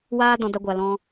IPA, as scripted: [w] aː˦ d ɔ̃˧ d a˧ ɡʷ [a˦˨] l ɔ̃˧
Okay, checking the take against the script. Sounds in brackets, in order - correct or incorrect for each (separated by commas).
correct, incorrect